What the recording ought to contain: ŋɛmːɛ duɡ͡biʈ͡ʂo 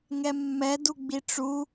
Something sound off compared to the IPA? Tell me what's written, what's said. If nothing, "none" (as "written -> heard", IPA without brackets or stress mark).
o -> u